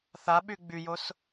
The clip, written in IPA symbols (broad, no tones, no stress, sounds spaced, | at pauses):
θ a ɓ y ɡ͡b y j o s